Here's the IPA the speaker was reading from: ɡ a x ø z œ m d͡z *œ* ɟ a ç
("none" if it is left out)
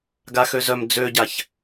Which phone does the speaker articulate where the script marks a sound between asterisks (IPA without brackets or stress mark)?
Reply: ø